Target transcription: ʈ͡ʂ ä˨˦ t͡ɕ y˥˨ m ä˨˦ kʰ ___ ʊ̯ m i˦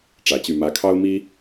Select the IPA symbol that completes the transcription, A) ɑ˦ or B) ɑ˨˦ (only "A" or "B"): A